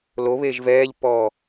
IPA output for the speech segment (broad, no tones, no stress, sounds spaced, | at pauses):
l o β eː ʒ v ɛː ʎ pː ɔː